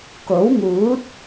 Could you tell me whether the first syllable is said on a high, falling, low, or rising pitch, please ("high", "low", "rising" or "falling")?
rising